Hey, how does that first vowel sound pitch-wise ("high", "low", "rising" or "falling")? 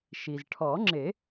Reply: low